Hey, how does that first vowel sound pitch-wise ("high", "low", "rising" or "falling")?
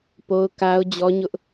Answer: high